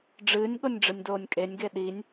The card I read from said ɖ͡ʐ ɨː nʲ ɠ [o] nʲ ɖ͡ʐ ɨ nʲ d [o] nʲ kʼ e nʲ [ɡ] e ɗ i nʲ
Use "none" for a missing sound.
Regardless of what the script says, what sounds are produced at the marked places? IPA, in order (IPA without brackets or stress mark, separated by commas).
o, oː, ɡ